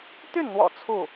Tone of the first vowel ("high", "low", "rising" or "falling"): falling